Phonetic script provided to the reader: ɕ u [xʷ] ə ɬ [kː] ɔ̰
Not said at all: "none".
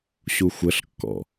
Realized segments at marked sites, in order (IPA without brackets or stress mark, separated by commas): xʷ, kː